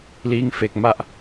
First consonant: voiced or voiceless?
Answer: voiced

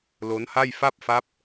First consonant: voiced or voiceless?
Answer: voiced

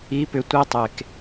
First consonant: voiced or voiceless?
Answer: voiceless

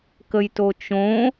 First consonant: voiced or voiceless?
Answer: voiceless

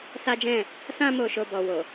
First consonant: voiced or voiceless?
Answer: voiceless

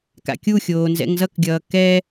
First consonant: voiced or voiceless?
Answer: voiceless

